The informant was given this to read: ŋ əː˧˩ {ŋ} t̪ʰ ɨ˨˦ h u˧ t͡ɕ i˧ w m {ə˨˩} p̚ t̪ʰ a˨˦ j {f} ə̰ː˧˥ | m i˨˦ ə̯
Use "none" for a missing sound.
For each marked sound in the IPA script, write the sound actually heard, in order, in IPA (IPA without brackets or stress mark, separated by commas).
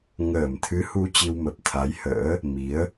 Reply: m, ə˨˩, h